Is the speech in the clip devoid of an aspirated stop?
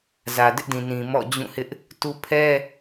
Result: no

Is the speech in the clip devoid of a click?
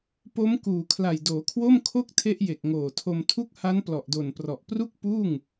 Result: yes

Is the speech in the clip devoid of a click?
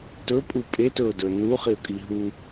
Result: yes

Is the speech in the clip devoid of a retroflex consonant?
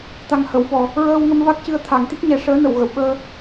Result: no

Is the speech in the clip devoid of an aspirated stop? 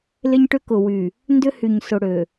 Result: yes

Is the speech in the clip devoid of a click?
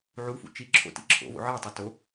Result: no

